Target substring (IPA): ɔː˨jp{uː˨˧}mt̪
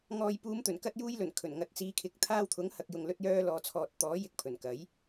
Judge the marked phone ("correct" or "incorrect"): correct